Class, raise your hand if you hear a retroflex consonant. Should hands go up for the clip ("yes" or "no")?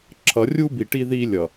yes